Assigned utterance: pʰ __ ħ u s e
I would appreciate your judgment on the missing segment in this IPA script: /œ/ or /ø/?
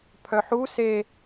œ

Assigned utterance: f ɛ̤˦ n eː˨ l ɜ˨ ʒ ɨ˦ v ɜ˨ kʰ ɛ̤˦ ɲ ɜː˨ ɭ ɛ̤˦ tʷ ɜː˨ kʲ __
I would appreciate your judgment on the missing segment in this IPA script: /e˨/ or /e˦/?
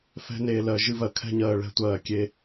e˦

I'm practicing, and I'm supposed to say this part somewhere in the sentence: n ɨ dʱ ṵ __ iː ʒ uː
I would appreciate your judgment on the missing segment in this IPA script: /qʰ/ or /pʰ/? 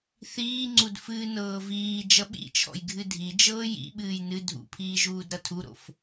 pʰ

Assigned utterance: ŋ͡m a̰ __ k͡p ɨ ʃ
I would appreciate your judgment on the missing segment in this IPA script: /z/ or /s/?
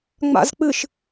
z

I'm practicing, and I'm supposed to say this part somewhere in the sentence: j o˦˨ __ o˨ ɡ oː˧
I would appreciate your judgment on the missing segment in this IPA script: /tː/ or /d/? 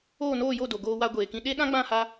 d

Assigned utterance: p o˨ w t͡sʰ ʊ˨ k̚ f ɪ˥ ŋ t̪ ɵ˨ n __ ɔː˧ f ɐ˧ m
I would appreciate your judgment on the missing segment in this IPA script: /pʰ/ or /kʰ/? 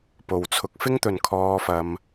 kʰ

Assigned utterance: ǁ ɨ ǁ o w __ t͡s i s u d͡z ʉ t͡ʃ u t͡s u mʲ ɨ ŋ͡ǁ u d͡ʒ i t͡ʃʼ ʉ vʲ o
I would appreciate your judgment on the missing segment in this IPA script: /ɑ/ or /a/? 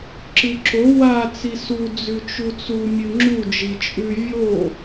a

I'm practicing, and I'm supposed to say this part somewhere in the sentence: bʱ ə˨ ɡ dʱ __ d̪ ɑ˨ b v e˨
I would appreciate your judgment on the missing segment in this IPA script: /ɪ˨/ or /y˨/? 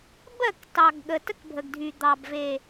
y˨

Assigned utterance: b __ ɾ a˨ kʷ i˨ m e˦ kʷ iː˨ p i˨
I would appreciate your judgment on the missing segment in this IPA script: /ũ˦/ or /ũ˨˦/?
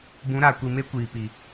ũ˨˦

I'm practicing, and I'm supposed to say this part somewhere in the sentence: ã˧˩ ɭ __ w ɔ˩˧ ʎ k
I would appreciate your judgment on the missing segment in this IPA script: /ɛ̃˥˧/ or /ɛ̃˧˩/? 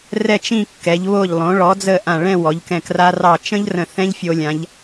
ɛ̃˥˧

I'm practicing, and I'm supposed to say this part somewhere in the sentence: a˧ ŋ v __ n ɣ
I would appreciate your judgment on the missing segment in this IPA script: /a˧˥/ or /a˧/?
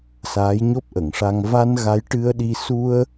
a˧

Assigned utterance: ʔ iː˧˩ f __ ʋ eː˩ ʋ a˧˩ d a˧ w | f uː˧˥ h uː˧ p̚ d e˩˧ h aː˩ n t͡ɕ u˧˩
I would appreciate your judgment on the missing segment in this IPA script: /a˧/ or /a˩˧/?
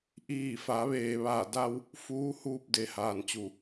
a˩˧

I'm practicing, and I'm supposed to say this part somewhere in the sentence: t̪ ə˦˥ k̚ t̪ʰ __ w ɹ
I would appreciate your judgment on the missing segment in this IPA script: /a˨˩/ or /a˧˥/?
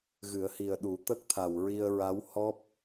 a˨˩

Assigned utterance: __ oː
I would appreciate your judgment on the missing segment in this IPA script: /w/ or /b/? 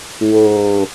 w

